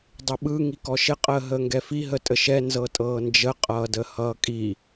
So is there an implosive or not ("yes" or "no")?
yes